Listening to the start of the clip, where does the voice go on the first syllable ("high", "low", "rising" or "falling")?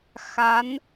rising